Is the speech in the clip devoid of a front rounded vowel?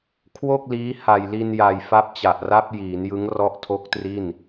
yes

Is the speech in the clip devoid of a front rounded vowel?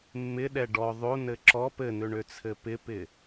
no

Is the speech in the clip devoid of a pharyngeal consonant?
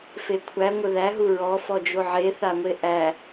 no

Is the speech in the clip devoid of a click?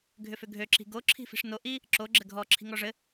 no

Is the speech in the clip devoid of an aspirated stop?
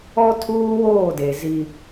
no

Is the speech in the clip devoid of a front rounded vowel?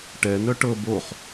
no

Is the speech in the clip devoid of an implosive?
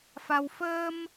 yes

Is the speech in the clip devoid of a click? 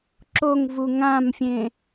no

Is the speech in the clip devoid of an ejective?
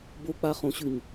yes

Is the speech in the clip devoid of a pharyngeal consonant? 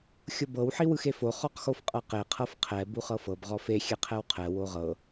no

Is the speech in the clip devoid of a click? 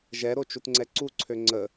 no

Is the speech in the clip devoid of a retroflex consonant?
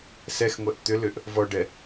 no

